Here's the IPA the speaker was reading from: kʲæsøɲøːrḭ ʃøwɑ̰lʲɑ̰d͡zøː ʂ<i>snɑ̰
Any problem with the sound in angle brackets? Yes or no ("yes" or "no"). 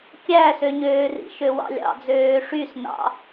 yes